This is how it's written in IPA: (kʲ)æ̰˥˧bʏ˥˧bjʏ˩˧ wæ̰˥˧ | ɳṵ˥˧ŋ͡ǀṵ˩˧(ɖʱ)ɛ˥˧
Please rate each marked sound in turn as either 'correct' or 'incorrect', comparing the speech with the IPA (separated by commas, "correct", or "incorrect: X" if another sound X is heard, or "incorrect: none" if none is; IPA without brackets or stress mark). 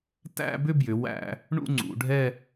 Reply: incorrect: t, correct